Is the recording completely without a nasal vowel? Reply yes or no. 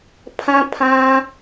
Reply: no